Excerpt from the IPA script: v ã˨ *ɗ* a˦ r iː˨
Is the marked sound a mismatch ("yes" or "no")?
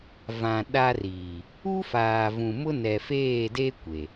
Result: no